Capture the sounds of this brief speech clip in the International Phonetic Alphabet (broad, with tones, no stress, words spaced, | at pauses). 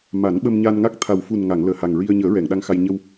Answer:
ma˨˩˦nɓə˧mɲa˧nŋa˦˥k̚ t̪ʰa˨˩wfu˨˩nŋa˨˩˨ŋ ləː˨˩ha˨˩ŋɹi˧ə̯ ɲəː˨˩˦ɹɛ˨˩˨ŋ ɗa˧ŋxa˧j ɲə˧w